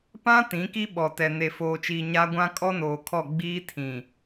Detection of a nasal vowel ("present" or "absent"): present